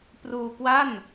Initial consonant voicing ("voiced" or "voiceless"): voiceless